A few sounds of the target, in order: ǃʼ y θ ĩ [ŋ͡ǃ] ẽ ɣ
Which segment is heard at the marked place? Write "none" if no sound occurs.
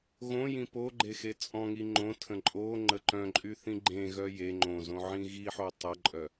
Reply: ɡ͡ǃ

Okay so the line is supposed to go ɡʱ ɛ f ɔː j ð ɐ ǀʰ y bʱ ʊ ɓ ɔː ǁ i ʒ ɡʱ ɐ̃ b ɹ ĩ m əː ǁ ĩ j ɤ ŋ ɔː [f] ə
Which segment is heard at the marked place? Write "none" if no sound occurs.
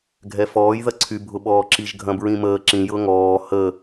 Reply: h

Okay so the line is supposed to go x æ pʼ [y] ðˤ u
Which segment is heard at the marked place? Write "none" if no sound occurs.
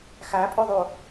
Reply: y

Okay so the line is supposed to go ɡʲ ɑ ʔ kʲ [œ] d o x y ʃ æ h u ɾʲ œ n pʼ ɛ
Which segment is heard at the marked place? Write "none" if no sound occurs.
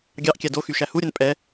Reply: æ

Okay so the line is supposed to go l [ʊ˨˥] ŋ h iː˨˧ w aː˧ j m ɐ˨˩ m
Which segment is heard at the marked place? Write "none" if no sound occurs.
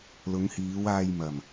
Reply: ʊ˨˧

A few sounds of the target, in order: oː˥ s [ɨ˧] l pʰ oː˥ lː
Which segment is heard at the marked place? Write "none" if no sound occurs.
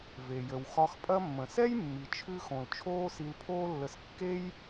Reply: i˧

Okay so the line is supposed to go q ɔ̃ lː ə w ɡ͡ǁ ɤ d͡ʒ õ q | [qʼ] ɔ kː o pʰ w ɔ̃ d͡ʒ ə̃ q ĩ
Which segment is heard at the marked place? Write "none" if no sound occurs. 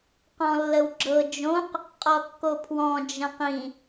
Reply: qʼ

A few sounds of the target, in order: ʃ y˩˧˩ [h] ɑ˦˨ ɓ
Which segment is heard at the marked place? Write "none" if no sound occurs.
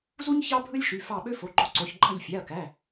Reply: f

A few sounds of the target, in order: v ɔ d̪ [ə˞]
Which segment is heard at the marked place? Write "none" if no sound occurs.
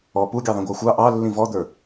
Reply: ə˞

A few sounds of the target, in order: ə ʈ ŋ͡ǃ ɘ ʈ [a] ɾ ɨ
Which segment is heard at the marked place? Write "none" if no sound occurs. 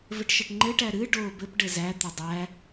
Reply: æ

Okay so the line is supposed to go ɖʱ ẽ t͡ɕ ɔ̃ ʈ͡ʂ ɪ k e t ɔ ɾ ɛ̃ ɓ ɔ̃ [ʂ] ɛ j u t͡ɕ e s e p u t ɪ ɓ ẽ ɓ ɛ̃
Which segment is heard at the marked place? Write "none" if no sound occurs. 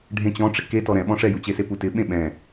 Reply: ʂ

